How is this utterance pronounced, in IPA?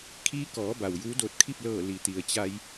kʰiː˧˥kɔː˩˧ ba˩wjuː˧˥doː˧t̚ kʰi˥˨p̚lɤː˧˩ li˩ t̪i˩ə̯t͡ɕa˧j

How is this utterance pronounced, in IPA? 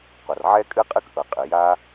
qʷa˩rʕɛ˦kʼɨ˦qʼɨ˦k ʔɤ˩qʼɨ˩ ja˦

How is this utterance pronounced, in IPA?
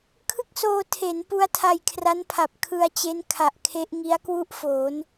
kʰɯ˥˩k̚soː˧ tʰe˩˦n pu˦˥a̯tʰa˧jkʰra˦˥npʰa˨˩p̚ kʰɯ˧a̯t͡ɕe˦˥n kʰa˨˩ʔ kʰe˦˥ʔŋi˦˥a̯ kwu˥˩ʔfoː˩˦n

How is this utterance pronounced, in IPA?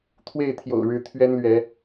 t̪ʰwe˥˨ɪ̯t̪ʰjo̰˨˩ʊ̯ ɻɻ̩˨˦ t̪ʰɥɛ˦nlɥɛ˨˦

